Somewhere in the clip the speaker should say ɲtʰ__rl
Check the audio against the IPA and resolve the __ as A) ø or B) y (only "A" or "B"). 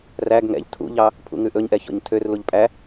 A